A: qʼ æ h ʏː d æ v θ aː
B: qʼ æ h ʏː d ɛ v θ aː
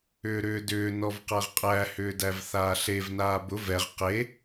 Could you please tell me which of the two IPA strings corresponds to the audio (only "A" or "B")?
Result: A